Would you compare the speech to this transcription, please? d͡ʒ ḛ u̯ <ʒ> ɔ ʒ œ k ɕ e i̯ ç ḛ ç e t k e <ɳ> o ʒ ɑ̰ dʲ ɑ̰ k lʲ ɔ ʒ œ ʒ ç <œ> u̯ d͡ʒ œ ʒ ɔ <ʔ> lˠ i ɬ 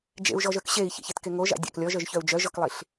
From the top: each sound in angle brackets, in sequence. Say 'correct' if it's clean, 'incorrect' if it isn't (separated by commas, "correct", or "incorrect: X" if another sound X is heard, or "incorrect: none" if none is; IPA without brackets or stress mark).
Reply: correct, incorrect: ŋ, correct, incorrect: k